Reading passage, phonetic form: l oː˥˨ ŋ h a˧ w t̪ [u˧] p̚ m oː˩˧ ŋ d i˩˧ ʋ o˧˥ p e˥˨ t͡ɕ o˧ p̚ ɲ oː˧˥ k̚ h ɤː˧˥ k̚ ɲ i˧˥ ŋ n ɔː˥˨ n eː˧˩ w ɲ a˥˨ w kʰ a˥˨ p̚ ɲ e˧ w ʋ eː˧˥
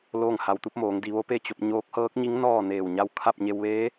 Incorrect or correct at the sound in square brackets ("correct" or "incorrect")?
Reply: incorrect